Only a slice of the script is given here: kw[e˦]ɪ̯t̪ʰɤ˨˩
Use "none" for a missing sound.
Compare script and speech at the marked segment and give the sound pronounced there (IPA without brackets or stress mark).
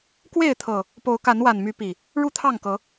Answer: e˥˨